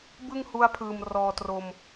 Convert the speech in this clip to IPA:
b ɯ˥˩ ŋ h u˦˥ a̯ pʰ ɯː˨˩ m r ɔː˧ t r o˧ m

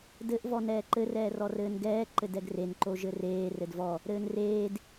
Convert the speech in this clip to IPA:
d ɘ ʔ v ɔ n ɛː ǃ ɘ r ɛː r ɔ r ɘː n ɡ ɛː ǃ ɘ d ɛ ɡ r e n ǃ o ʒ ɘ r eː r ɘ d v ɔ | ɾ ɘː n r eː d

